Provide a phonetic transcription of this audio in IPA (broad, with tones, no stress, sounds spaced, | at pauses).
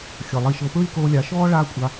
xʲ ɤ˨ lˠ i˧ ʃ ɤ˧ p ɹ i˦ k oː˧ lʲ a˨˦ ʃ ɔː˦ ɭ aː˦ kʷʼ a˧